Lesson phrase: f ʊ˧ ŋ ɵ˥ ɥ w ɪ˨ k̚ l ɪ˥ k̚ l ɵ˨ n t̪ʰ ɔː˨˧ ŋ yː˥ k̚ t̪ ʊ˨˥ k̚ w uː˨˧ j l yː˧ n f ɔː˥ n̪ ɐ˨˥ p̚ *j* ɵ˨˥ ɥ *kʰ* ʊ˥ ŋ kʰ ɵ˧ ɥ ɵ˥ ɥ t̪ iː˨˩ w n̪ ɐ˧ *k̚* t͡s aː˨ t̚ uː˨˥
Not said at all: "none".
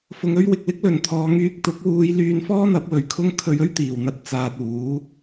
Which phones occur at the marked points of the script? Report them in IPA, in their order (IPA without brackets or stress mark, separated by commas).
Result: w, kʰ, t̚